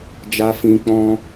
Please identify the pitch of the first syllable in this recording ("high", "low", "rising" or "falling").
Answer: low